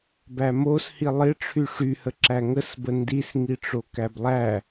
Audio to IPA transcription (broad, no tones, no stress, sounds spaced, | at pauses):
b æ m o s h i lˠ ɪ ʈ͡ʂʰ y ʂ y h ə ǁ æ ŋ ə s b ə n d i s ŋ i ʈ͡ʂ o k æ b lˠ æ